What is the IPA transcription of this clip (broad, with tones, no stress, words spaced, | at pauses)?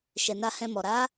ʃɛ˨na˧ hɛ̃˧mɔ˨ ɾa˨˦